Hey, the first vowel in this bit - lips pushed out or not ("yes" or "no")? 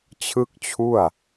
no